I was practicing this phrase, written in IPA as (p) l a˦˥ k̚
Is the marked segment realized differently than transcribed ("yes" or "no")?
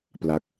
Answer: no